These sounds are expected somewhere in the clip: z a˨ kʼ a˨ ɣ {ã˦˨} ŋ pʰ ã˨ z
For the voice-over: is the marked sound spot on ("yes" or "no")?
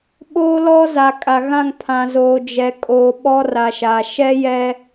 yes